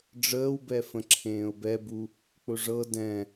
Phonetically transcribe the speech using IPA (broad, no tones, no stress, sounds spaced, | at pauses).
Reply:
ɖ͡ʐ əː w b ɛ f ə̃ ǁʰ ẽː ʊ̯ b ɛ b u | k͡p ʊ ʐ ɤ d ɛ̃